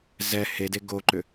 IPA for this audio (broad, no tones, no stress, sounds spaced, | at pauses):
z ɛ h e d e ɡ o ǃ ʏ